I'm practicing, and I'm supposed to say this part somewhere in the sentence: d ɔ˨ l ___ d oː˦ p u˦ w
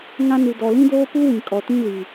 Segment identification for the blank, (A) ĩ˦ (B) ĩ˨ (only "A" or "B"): A